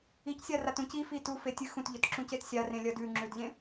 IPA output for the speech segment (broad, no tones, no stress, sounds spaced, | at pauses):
i c sʲ a r a t ũ c i f i t u f e tʲ ɨ x ũ t ʎ ɵ t ǁ ũ c e t sʲ a r ẽ lʲ ɐ d ʉ ŋ͡ǁ ʉ d ʎ ẽ